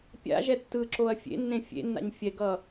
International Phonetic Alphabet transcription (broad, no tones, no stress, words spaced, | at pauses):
pʲa̰ʒɛ tːɯǁoɐ̯ fʲḛnːẽ fʲḛnːa̰ɲ fʲɛɡʌ